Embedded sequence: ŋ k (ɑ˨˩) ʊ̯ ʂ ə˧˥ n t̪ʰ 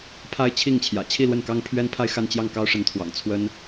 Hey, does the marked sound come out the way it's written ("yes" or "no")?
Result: no